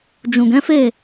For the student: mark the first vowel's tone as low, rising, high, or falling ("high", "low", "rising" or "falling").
low